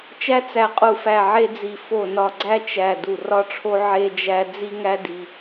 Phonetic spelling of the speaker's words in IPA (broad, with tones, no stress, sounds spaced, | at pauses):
t͡ʃ æ˥ t͡s æ˦˨ qʼ u˦˨ f æ˦˨ ʕ e˥ d͡z i˦˨ f o˦˨ n ɒ˦˨ ɡ͡ǀ æ˥ t͡ʃ æ˦˨ d u˦˨ r ɒ˥ ʈ͡ʂʰ o˥ ʕ e˥ d͡ʒ æ˥ d͡z i˥ ŋ æ˥ d i˥